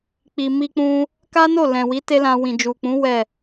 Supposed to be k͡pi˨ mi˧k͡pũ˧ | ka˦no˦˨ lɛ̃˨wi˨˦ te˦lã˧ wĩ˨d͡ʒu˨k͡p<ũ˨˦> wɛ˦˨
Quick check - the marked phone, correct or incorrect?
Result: correct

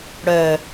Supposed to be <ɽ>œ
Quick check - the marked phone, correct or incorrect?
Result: correct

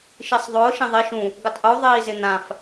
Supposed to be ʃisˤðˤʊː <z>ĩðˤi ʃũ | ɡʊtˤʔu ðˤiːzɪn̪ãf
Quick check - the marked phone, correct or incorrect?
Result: incorrect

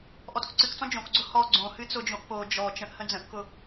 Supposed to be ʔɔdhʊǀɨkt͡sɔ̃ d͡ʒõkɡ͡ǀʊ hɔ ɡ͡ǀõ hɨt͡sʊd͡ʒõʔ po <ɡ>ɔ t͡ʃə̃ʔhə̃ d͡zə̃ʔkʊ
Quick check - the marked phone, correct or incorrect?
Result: incorrect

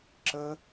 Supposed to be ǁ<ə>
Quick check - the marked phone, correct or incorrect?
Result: correct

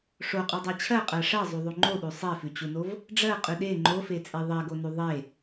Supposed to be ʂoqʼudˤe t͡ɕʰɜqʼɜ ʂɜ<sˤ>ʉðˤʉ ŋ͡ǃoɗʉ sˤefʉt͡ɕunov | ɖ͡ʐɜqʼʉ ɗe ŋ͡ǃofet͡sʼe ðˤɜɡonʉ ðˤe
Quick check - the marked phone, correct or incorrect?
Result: incorrect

